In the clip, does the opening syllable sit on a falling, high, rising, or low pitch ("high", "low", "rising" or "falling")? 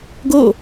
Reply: falling